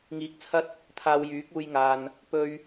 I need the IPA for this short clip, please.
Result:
ŋ iː˨˥ k̚ t͡sʰ ɐ˧ t̚ | t̪ʰ aː˧ w j yː˨˥ k̚ uː˧ j ŋ aː˨ n | p ɵ˧ ɥ

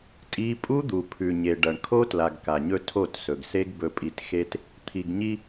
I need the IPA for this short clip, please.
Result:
tʼ i˦ pʼ u˦ d̪ u˨ pʰ ʉ˨ ɲ e˨ ɖ ɐ˨ ɳ kʰ o˦ t l a˨ ɡ k a˨ ɲ ɵ˦ tʰ o˦˨ t s ɵ˨ ɡ s e˦ ɡ b ɵ˨ pʼ i˨ t x e˦ t | t̪ʰ i˨ ɡ ɲ i˦

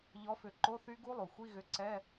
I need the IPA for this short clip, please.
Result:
ʎ ɔ˨˥ f ʏ˧˩˧ ǃ o˧˥˧ θ y˦˥ ɡ u˦˥ lˠ u˩ xʷ i˧˥˧ ɣ ʏ˨˥ ǀ ɛ˧˥˧

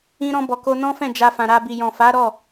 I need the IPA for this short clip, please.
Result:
ĩ˧ ɾ ɔ̃˧ b ɔ˨ k o˧ n ɔ̃˦ f ɛ̃˦˨ d͡ʒ a˧ f ã˨ ɾ a˧ b i˨ j ɔ̃˨ f a˨˦ ɾ ɔ˦˨

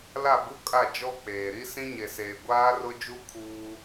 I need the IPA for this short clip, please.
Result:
l a˦˨ b u˦ kʼ a˦˨ d͡ʒ ɔ˦ k͡p eː˨ ɾ i˦ s ĩ˦ ɲ e˨ s eː˨ ɡʷ aː˦ r ʊ˦ d͡ʒ u˦ kʰ uː˦

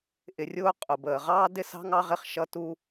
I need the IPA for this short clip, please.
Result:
ʔ ɪ˧ rʲ ʊː˥ qʼ ʊ˩ b əː˩ ʁ ɑː˥ d ɪ˥ s ɑ̤˥ ŋ ɑ˥ ʁ ɪ˩ χ ʃ ʌ˥ t u˥

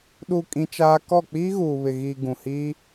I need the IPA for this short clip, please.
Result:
ɗ u˨ kʼ ĩ˦ t͡ʃ aː˦ k ɔ˦˨ k͡p iː˦ ɣ uː˨ β ɪ˨ ɣ iː˨ ɡ ũ˨ h iː˦

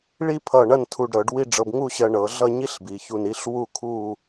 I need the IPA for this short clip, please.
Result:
ɭ i˥ pʰ ʌ˧˩ ɳ ɐ˥˧ n tʰ u˧˩ ɖ ɾ ɤ˩˧ ɖ w i˥˧ ɖ͡ʐ ɤ˧ b ŋ u˥˧ ɕ ɜ˧ ɳ ɤ˩˧ ɮ ʌ˥˧ ɲ i˥ ɬ b i˩˧ ç u˧˩ n i˥˧ ɬ w u˥˧ kʰ u˥˧

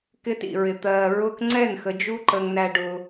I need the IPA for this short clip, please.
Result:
k ɪː˧ t ḭ˨ ɹ ɪ˨ t̪ ɜː˨ ɹ ʊ˧ k ŋ͡ǀ ɛ˦˨ n x ə˧ d͡ʒ u˦ ǃ ə˧ ŋ n æ˧ ɖ ʊ˧

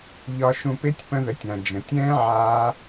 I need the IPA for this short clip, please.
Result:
ʎ ɒ˧ ʃ ũ˧ p e˦ tʲ p ə̃˧ ð ə˨˦ tʲ ã˨ d͡ʒ ə̃˨ tʲ ɛ̃ː˦ ʕ aː˦

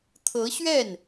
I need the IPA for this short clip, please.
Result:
t̪ʰ ɤ˧˥ ɕ ɥ ɛ˥˩ n

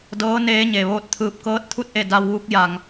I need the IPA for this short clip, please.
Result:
d ɤː˧˥ n eː˧˥ ɲ e˩ ʋ oː˥˨ t̚ t̪ʰ ɯː˧ p̚ k ɤː˧˥ t̚ t̪ʰ u˥˨ t̚ ʔ e˥˨ d a˧ w ʋ u˧˥ k̚ j a˧ ŋ

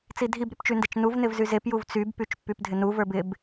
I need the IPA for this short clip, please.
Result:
t͡s i dʱ i b ɾ y p t͡ʃ y n d e t͡ʃ n u v n ɪ v z y z e p j u v t͡s y b p y t͡ʃ pː y p dʱ ɪ n u v ə˞ b ɪ b

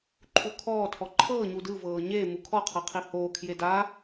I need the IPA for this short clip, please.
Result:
ǃʰ u kʰ ɔː tʰ ɔ ǃʰ ɤː ɲ u d ɯ v ɤː ɲ eː m u kʰ ɔ qʰ ɤ qʰ i h oː kʰ j e d a

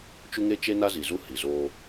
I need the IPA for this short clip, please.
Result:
t͡ʃ u˦ ŋ e˦ t͡ʃ e˦ n a˦ z i˨ z u˦ h i˨ z oː˦

